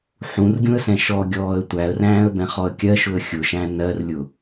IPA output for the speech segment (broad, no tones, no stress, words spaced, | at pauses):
ħũrɡʲũə̯sɛ̃ ʃɔɡʲɔːə̯ tʷæə̯ræ̃ːə̯bɛ̃χɔə̯ kʲɜʃʊə̯ xʲʊʃæ̃ nɜrlʲʊ